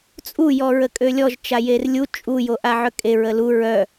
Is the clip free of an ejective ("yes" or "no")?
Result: no